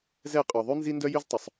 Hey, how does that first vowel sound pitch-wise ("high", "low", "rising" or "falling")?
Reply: falling